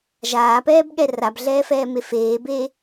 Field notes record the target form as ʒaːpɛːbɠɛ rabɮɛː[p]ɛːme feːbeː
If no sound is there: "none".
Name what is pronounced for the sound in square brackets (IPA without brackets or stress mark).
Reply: f